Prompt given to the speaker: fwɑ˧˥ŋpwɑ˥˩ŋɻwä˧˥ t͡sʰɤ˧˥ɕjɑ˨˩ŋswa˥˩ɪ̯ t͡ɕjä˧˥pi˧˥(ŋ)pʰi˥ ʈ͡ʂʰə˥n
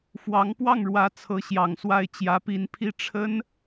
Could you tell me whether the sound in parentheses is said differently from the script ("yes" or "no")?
yes